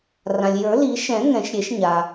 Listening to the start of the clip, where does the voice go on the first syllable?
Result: low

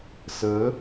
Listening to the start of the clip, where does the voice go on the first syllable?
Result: rising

